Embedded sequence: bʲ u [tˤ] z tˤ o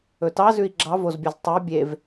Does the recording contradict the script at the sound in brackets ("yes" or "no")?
yes